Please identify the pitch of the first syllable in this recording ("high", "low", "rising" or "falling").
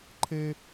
high